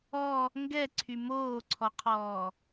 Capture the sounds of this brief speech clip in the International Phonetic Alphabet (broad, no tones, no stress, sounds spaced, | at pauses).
ɔ | ŋ ɡ ɛ ǀʰ y m oː ǀʰ ɔ qʰ ɔː